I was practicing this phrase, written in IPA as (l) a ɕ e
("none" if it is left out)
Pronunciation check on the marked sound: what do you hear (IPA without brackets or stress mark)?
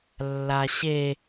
lː